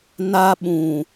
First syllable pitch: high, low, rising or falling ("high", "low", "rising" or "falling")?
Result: high